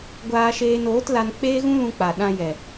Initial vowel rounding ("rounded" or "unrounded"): unrounded